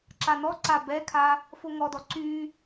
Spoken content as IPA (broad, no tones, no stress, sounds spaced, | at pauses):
ǁ a n ɔ ǀ a b ɛ kʰ a | f o ŋ ɔ d ɔ ǀ y